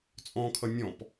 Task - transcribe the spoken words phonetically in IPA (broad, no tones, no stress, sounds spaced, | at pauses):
t͡sʼ ɔ̃ kʰ ʌ nʲ ɔ̃ p